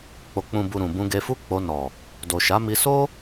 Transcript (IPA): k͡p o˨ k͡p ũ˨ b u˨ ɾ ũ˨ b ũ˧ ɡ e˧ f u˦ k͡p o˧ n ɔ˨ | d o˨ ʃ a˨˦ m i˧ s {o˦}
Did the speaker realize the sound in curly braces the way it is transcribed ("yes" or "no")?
yes